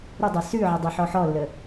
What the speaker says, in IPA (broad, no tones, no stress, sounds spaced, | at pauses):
ɾ ə dˤ e s ʉ ʕ ə dˤ i ħ ɔ ħ ɔ lː ə